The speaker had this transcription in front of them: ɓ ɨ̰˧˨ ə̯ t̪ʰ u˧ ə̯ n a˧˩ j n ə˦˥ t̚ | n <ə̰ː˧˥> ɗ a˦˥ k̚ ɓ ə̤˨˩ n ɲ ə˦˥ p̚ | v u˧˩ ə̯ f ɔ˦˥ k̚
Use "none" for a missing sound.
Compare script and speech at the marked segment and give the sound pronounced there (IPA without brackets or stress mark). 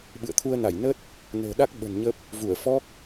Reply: ə̤ː˨˩